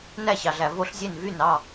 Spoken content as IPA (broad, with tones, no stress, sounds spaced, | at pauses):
n æ˥˩ ɕ ɑ˩ ɮ æ˩ v o˥˩ ɬ zʲ e˥˩ n v y˥˩ n ɑ˥˩